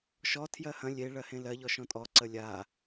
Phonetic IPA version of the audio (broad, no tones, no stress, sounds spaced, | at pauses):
ʃ ɔ tʰ j ɜ h ɐ̃ lʲ e ɭ ɜ h ẽ l ɜ ʎ ɔ ʃ ɔ̃ tʼ ɔ ǀ ə lʲ a